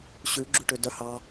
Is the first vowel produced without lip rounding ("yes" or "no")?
no